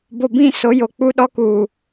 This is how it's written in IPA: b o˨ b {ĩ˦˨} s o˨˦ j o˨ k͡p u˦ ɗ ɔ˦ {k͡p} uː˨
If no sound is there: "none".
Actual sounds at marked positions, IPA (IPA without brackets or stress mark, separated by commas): ĩ˦˨, k